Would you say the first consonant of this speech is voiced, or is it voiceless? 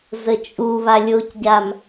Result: voiced